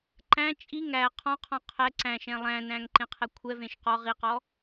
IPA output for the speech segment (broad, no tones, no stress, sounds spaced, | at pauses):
ǃ æ̃ t͡ʃʼ i ŋ æ qʰ ɔ̃ qʰ ɔ̃ qʰ ɛ ǀ æ̃ ʃ ɛ̃ lˠ æ̃ n æ̃ ŋ ǃ ẽ qʰ ɛ kʷʰ ɛ v ẽ ʃ q ɔ ʁ i q ɔ